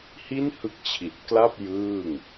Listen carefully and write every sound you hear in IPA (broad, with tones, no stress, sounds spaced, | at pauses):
h i˥˩ n h ɯ˦˥ k̚ t͡ɕʰ i˨˩ t̚ k l a˥˩ p̚ j ɯː˥˩ ŋ